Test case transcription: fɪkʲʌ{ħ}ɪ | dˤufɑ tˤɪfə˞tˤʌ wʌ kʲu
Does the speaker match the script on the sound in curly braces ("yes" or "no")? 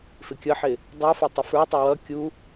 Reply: yes